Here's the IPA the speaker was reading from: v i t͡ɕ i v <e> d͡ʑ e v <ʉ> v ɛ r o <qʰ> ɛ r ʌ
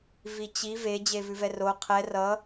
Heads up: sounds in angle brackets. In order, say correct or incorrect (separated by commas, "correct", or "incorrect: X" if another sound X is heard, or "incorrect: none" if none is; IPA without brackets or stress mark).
correct, correct, correct